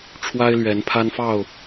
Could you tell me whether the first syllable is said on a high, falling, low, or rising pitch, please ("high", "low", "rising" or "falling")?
high